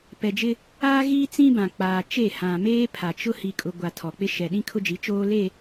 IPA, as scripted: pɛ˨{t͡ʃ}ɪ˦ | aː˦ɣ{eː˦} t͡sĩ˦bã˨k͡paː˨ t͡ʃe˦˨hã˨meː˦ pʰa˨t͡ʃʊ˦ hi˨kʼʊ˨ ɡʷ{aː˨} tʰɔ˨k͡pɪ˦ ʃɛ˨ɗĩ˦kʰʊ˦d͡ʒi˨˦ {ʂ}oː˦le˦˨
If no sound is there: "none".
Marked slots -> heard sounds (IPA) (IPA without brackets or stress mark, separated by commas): d͡ʒ, iː˦, a˨, t͡ʃ